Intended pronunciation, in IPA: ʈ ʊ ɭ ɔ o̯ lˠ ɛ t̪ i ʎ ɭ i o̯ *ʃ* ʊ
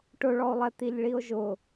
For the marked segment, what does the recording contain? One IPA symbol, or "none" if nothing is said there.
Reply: ʒ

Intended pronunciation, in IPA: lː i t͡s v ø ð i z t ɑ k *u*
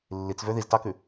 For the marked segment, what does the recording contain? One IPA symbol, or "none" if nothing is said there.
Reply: ʉ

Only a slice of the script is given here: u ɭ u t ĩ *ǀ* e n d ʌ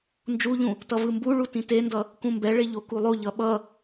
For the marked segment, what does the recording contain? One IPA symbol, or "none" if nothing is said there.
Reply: t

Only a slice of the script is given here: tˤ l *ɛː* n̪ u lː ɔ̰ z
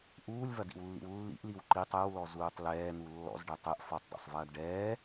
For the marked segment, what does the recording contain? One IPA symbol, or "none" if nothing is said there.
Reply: ɛː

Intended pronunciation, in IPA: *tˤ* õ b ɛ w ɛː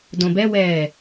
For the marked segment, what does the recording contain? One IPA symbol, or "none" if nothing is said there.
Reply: d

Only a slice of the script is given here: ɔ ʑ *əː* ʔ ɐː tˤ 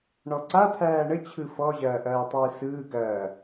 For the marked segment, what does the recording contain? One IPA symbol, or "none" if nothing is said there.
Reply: ɐː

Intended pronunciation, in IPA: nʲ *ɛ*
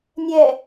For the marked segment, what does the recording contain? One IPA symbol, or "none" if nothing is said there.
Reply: ɛ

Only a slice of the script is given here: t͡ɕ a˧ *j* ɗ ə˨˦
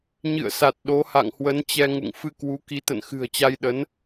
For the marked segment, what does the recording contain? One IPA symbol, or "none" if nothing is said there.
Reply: j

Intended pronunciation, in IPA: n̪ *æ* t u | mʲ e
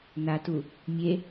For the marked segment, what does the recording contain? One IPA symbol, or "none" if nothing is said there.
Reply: a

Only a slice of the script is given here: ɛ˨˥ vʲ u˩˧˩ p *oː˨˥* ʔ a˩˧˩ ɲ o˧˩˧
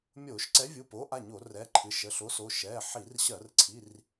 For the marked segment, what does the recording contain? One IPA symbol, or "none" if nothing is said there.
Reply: oː˨˥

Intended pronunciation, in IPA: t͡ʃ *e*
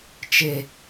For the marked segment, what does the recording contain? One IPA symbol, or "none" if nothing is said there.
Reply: e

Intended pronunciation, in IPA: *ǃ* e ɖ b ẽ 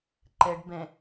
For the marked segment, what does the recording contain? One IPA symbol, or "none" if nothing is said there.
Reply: ǃ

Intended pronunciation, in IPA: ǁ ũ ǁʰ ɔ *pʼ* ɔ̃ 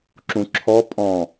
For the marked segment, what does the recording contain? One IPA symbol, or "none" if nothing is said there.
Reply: pʼ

